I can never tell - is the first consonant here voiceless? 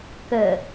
yes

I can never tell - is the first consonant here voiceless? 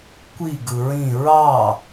yes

